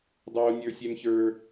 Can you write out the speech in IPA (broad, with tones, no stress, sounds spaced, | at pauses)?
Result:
dˤ oː˦ nʲ ə˞˦ sʲ ɛ˦ m ç ə˞˦